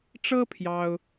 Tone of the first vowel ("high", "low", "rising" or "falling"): high